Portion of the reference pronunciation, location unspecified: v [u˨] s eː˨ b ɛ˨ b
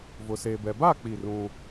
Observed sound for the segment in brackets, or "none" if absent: ʊ˨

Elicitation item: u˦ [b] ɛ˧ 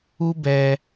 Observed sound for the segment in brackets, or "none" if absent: b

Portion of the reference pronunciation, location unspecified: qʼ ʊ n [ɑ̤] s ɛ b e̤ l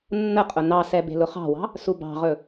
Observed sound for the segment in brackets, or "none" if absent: ɑ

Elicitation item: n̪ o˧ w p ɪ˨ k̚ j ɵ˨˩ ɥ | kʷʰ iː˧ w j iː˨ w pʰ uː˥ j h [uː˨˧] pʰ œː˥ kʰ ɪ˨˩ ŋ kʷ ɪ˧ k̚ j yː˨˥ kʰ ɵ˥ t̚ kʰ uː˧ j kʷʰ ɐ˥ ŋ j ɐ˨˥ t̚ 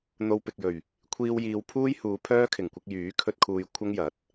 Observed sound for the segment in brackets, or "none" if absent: uː˨˧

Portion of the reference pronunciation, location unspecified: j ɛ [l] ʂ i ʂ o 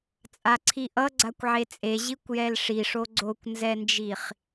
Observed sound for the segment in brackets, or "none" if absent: l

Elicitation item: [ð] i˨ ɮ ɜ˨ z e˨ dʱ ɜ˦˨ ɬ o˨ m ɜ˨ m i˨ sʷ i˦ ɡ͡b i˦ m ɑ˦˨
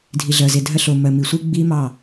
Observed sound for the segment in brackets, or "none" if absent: dʱ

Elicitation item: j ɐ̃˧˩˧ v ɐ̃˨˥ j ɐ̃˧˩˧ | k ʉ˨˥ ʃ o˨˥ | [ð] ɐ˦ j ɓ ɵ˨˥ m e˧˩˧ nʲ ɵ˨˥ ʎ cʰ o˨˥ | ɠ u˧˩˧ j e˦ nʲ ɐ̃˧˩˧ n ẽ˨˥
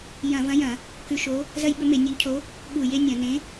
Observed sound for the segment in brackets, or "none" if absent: z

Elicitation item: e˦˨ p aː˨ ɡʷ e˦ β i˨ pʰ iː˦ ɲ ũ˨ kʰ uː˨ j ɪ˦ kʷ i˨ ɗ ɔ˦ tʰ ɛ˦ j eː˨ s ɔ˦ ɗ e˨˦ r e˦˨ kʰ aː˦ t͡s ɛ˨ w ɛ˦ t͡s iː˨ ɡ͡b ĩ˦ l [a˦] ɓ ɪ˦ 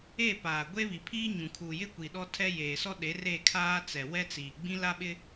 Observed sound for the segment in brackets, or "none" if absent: a˦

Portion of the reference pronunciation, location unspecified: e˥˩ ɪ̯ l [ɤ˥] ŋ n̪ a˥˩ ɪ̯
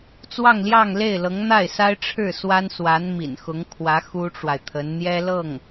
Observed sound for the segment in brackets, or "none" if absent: ɤ˧˥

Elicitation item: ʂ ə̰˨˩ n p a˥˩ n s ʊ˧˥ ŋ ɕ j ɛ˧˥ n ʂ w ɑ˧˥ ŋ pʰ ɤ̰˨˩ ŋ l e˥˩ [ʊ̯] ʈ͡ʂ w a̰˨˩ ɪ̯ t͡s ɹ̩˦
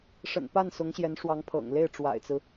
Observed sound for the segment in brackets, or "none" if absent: ɪ̯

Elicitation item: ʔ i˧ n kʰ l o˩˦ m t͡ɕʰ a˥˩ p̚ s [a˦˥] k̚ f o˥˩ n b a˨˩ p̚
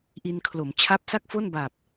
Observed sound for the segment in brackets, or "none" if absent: a˥˩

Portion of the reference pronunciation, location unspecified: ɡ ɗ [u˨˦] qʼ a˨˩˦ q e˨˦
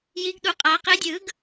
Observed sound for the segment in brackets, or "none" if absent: u˨˩˦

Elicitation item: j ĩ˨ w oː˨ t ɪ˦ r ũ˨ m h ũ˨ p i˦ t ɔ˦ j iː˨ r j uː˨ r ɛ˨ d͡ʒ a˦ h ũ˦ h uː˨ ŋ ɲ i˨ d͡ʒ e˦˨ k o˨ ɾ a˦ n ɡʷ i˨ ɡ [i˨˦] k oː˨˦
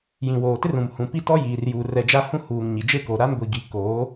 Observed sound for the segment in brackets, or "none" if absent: i˨˦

